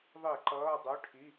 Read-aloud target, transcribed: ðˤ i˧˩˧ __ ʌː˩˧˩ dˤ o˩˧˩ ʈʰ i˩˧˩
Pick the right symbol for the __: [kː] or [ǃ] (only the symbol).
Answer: ǃ